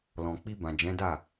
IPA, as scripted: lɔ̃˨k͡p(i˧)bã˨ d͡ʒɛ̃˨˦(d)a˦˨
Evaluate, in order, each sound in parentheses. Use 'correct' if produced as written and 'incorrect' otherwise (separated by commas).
correct, correct